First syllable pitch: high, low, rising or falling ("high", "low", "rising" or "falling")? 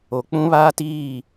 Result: low